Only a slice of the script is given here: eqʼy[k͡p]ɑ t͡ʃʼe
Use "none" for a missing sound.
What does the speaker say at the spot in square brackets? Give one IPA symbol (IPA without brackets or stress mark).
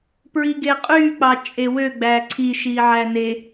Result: k͡p